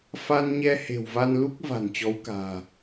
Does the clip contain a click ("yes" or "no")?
no